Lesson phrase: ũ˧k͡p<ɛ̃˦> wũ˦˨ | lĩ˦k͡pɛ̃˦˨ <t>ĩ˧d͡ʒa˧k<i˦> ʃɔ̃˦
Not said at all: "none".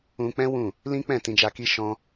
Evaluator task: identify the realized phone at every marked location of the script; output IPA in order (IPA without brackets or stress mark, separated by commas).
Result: ɛ̃˦, t, i˦